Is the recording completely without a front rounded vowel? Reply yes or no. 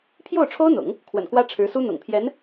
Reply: yes